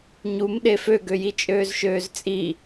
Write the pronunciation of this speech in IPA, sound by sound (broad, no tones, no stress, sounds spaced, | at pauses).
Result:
ɲ u m ɗ e f ø ɡ ø j i t͡ʃʼ øː z ʃ øː z t͡sʼ i